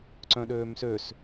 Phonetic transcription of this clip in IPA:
ǀ œ̃ ɗ øː m s ø s

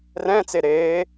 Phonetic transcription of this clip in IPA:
r ɛ̃ t͡s e ɾ eː

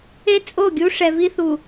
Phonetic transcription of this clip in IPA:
e˦ t͡sʼ o˦˨ ɡʲ u˦ ʂ ɛ˨ v i˦ θ u˨

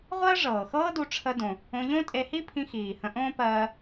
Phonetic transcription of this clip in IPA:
ʁʷ ɜ˥ ʐ ɤː˩ x ɤː˥ d u˧ ʈ͡ʂʰ ə˧ d õ˩ | õ˧ ʎ õ˥ tʼ e˧ h i˥ pʰ ĩ˧ x iː˩ h ə̃˧ ʔ õː˥ p ɜː˧

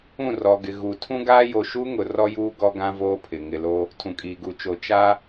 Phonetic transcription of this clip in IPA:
ũ˦˨ r ɔ˨ ɡ ɪ˨ ɣ u˨ tʰ ũ˦ ɡ aː˦ j o˨ ʃ u˦ ŋ ʊ˨ r ɔ˦ j uː˦ ɡ ɔ˦ ɡ ã˦ v oː˦ pʰ ɪ˨ ŋ ɪ˨ l o˦ | tʰ ũ˨ kʼ iː˨ ɡ u˨ t͡ʃ o˨ t͡ʃ a˦

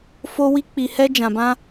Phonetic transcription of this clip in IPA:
f o˦ w i˦ k͡p i˧ h ɛ˦ d͡ʒ ã˧ b ã˦

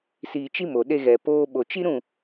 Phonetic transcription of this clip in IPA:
s i˧ t͡ʃ i˦ m o˨ ɗ e˧ ɣ ɛ˨ p oː˦ ɓ o˨ t͡ʃ i˦ ɾ ũ˦˨

